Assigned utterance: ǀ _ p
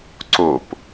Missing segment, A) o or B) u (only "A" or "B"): A